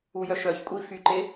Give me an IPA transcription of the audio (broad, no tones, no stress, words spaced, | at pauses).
ujœʃœçkʷʼi fyǃe